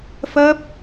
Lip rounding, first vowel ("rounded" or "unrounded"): unrounded